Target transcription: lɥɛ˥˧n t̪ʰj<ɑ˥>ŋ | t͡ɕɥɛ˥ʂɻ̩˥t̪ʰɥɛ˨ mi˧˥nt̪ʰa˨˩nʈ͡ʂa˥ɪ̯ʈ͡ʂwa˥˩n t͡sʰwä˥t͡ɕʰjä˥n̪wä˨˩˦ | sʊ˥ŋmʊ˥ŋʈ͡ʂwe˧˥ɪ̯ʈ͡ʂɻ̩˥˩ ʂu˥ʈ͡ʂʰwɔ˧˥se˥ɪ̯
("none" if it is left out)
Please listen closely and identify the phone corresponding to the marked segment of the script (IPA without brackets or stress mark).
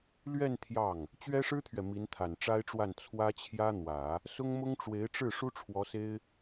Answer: ɑ˥˩